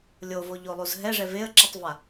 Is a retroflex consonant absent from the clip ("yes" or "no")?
no